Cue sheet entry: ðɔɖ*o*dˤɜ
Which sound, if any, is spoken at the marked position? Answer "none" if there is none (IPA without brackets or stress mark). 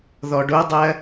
o